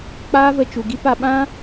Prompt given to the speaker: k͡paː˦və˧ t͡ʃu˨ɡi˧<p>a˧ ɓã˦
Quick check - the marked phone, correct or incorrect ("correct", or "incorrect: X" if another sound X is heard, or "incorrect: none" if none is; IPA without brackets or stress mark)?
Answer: correct